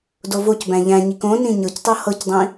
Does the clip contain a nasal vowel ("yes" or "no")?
yes